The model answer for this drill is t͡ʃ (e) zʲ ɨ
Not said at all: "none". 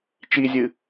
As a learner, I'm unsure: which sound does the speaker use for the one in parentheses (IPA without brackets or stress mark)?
i